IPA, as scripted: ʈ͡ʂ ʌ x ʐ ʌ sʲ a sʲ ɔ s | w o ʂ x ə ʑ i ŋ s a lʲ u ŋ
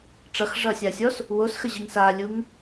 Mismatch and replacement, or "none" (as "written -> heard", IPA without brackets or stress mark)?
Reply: ʂ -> s